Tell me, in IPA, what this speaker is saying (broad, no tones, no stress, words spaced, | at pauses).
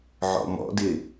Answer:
ʕɔ̰mɔ̰dɪ